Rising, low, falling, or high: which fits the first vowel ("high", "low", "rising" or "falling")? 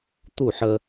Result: falling